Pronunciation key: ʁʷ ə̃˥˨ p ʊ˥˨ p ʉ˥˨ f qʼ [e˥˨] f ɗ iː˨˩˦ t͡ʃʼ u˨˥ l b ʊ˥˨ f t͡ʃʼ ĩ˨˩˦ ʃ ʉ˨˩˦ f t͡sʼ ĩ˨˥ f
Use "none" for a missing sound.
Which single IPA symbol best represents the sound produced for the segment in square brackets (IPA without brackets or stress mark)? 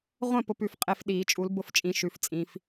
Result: e˥˨